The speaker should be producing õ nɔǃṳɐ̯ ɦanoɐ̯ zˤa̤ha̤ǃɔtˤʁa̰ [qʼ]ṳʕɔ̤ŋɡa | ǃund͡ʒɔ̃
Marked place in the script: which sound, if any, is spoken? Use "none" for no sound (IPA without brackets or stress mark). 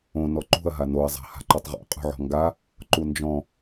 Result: qʼ